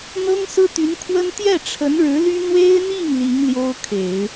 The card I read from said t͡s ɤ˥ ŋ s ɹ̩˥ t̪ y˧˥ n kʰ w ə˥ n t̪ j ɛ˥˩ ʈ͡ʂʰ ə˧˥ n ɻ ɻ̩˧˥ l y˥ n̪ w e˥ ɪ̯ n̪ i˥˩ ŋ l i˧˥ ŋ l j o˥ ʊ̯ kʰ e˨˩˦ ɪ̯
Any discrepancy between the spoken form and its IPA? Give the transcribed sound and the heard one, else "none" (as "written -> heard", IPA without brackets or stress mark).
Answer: t͡s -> n̪